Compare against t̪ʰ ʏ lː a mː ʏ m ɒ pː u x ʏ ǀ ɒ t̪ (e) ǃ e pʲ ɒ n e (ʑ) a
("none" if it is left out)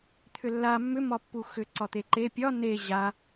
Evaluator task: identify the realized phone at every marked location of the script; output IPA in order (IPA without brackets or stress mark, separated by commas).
e, ʑ